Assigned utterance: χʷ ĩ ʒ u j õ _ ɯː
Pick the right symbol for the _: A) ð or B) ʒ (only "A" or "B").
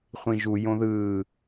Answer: A